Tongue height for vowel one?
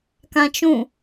low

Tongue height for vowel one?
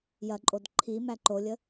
low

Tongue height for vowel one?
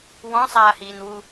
mid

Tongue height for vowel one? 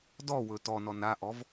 mid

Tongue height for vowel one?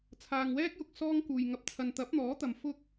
low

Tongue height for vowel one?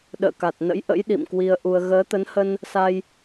mid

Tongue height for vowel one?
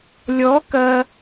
mid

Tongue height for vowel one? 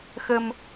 mid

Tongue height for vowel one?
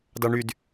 low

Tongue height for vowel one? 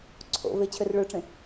mid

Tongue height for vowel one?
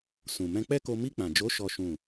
high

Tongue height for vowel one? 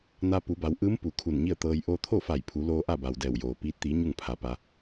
low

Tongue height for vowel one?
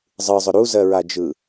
high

